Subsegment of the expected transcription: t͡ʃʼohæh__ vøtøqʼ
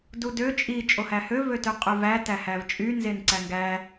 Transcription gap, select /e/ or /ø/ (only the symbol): ø